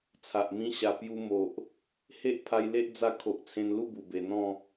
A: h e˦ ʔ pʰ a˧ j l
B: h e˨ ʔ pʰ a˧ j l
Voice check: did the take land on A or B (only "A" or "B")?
A